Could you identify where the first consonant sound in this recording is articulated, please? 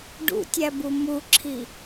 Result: retroflex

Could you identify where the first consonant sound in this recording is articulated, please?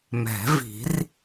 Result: labial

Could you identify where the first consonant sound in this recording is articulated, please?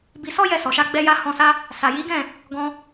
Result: labial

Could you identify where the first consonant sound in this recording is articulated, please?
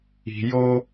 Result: palatal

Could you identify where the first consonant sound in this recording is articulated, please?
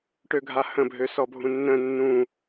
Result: retroflex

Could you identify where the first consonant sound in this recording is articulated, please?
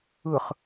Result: uvular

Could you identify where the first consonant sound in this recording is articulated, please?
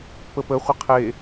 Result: labial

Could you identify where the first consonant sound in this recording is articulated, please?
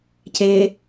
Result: palatal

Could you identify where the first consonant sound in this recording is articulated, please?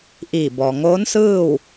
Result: glottal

